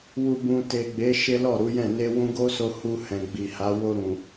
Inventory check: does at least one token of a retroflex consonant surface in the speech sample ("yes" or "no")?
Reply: no